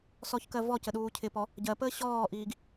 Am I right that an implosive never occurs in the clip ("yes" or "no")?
no